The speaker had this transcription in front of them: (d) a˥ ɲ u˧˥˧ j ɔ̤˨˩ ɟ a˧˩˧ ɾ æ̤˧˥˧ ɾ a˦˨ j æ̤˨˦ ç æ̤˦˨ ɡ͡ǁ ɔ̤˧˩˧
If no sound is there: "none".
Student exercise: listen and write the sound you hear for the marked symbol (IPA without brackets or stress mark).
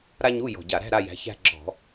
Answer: ɾ